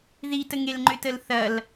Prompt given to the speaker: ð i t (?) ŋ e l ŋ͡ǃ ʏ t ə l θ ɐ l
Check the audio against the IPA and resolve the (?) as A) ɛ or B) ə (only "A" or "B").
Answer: B